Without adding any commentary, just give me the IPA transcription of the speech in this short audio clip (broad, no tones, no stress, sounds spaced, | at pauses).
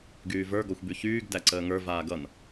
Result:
ɡ yː v ə˞ ɡ ɔ xʷ b y ç yː ɡ d æ ǀ əː ŋ ə˞ v aː ɡ ʌ n